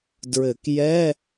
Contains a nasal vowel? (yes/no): no